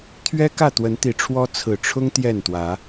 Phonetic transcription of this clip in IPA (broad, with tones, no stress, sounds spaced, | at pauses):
t̪ʰ ɥ ɛ˦ k ä˥˨ t̪ w ə˨˦ n t̪ i˨˦ ʈ͡ʂʰ w ɔ˦ t͡sʰ ɹ̩˨˩ ʈ͡ʂʰ ʊ˦ ŋ t̪ j ɛ˥˨ n t̪ w ä˨˦